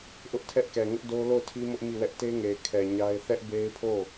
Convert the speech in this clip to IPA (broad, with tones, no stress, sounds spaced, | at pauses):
ʔ ʊ˦ ʔ tʰ ɛ˦ ʔ k ɛ˨ ŋ ʊ˦ ʔ d o˦ l o˦˨ ʊ̯ tʰ i˦ m ʊ˦ ʔ m i˦˨ w ɛ˦ ʔ t e˦ ŋ e˨ ɪ̯ kʰ ɛ˨ ɲ a˦ ɪ̯ θ ɛ˦ ʔ b e˦ ɪ̯ pʰ o˦˨